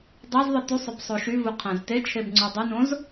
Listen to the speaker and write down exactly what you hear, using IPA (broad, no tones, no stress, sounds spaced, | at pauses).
dˤ e z ðˤ ɯ t y sˤ ø b sˤ o ʃ y v u qʰ æ̃ z t e t͡ʃʰ e b ŋ͡ǀ u dˤ ɯ n õ z